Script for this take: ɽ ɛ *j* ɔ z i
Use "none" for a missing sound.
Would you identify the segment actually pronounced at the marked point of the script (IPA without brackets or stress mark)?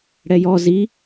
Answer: j